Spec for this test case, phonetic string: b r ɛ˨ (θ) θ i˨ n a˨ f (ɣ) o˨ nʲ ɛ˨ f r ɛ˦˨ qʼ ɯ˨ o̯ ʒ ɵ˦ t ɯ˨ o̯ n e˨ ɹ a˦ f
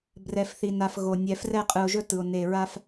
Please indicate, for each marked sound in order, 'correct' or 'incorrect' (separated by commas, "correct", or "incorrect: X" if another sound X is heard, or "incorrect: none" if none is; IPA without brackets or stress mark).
incorrect: f, correct